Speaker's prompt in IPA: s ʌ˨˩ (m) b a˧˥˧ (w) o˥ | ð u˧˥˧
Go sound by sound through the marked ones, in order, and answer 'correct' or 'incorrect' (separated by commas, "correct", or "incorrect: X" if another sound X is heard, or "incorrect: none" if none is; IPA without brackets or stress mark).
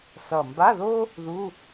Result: correct, incorrect: ð